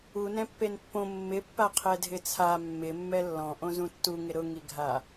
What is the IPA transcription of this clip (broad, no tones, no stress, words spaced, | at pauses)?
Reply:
u nɛ̃pːenpːõ mːɪpːa qʰɛdʱɪt͡sʰa mːɪmːɛ lːɔ̃ʔõ zũtːuŋɪ ɾʊŋiɡʱa